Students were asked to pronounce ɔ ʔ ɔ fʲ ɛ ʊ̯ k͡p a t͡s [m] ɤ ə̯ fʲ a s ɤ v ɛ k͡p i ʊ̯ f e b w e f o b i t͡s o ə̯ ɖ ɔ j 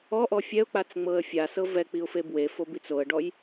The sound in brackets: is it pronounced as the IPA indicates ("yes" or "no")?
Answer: no